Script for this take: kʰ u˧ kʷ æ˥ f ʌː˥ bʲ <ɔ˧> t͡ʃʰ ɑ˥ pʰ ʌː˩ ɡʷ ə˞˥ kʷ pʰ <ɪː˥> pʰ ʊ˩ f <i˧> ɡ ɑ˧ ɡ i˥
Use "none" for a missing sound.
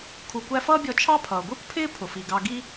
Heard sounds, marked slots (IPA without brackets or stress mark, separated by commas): ɔ˧, ɪː˥, i˩